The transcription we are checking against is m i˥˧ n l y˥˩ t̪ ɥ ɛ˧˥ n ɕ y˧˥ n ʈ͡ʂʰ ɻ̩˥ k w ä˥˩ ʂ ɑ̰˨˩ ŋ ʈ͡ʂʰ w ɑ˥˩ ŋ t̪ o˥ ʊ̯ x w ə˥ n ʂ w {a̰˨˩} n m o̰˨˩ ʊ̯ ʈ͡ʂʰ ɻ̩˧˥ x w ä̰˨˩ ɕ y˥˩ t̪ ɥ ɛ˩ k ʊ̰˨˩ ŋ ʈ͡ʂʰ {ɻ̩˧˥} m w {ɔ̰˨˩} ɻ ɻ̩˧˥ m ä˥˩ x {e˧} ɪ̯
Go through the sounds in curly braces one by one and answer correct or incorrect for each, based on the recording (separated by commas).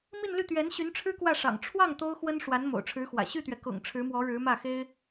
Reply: incorrect, correct, incorrect, incorrect